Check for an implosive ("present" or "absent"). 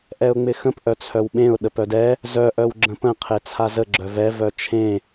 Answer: present